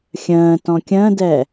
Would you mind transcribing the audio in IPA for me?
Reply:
xʲ ə̃ː t ɔ̃ kʲ ə̃ː d ɛ

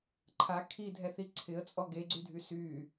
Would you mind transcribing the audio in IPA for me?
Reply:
ǃʰ a kʰ i dʱ ɛ θ i ǀʰ ɪ ə̯ t͡sʼ ɔ ɡ e ɡ͡ǀ y dʱ y s y

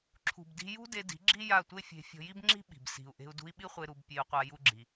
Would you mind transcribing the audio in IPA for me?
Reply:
ǁʰ ṳ˨ b d i̤˧ j ṳ˦ d e˧ d i̤˨˦ ɡ͡ǁ i˦ j a˦˨ tʷ e˦ fʲ e̤˧ fʲ ɔ̤˧ j i˦ b ŋ͡ǁ i̤˦ ɓ i̤˨ b s i̤˨ u̯ ʔ e̤˧ u̯ d ṳ˧ i̯ ɓ i˦ χʷ e˧ ɾ u˧ b pʲ e˧ u̯ qʷ a˧ j u˦ ɡ͡ǁ i˧

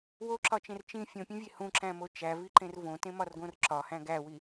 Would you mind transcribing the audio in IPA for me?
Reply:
w o ǁ ɒ t͡ʃ ẽ r t͡ʃ ĩ fʲ õ pʲ ũ vʲ e h ũ ǁ æ̃ m o t͡ʃ æ v i ǃ ẽ r v õ t ẽ m ɒ r ɡ õ r ǁ ɒ h æ̃ ɡ æ w i

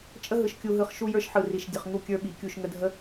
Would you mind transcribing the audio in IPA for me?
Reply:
t͡ʃʼ ə˦ ɦ ɯ˨ ʃ kʲ u˨ ɦ ɯ˨ χ ʃ u˦ j ə˞˦ ʃ ħ ɯ˨ r i˨ ʃ dʲ ə˨ χ ŋ u˦ kʲ ə˞˦ ɓ i˨ kʲ u˦˨ ʃ ŋ ə˦ dʱ ə˦

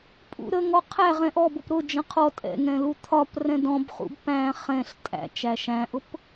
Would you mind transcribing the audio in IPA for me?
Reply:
pʼ ṵ ɾ ə ŋ ɔ qʰ æ ʁ ɛ̃ ʔ ɔ b ʊ p ɾ ʊ d͡ʒ ə̃ qʰ ɔ tʼ ɛ̰ ŋ ɛ̃ l u t̪ʰ ɒ p r ɛ̃ d ɔ̃ b χ ṵ b p æ̃ χ ɛ̃ ɬ tʼ æ̰ t͡ʃ æ ʃ æ̃ ʔ ʊ p

